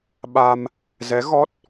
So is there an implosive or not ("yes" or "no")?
yes